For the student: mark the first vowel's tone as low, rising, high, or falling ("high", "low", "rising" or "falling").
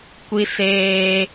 high